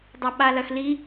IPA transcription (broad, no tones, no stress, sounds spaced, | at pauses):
dˤ a ɓ a l ɐ x l i